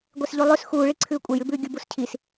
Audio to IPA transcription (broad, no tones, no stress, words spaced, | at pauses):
ɡʷesʎulˠʉs xuːɭi ǀʰʉːkʷʼejʉbʉː ɡʲubuscʰis